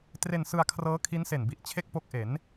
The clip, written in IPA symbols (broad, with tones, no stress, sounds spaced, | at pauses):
t r e˧ n s ɯ˧ a̯ kʰ r ɤː˦˥ kʰ i˦˥ n s e˨˩ n b i˨˩ ʔ t͡ɕʰ e˥˩ k̚ p o˦˥ k̚ ʔ e˩˦ n